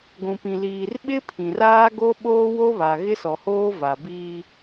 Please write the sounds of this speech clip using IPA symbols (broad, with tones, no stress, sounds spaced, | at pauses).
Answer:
ɡʷ ũ˨ p ĩ˨ l iː˨ r ɓ ɪ˦ pʰ ĩ˨ r aː˦ ɡ o˦ ɓ oː˦ w o˦ β a˨ ɣ ɪ˦ s ɔ˨ h oː˦ v a˨ b iː˦